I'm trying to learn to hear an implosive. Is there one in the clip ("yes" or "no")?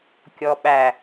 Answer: yes